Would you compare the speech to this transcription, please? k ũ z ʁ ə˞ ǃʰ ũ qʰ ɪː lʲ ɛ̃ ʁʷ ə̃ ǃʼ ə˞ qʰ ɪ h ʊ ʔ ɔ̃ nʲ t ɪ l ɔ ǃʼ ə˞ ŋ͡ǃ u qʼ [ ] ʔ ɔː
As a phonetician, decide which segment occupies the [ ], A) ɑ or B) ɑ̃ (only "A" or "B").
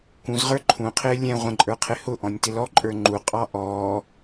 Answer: A